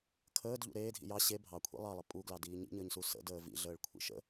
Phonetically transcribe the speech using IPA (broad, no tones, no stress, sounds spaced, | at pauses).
kʰ əː d ʎ ṵ ɾ eː dʱ ḭ j ɑ ɕ e bʱ ɑ kʷʰ ḭ lˠ ɑ lˠ ə pʼ u ɡ l ɑ d iː ɲ ḭ ɲ əː ɲ s u s ə̰ d əː v ḭ ɮ əː ɭ kʷʰ ḭ ʃ ə̰